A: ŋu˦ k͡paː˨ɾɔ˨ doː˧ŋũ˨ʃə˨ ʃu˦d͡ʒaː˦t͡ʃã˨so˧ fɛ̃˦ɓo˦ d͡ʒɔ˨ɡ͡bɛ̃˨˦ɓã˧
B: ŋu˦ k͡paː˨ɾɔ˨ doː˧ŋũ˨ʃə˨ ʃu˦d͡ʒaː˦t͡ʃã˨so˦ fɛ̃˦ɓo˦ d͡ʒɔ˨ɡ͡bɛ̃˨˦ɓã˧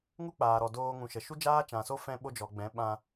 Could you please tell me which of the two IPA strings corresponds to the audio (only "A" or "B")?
B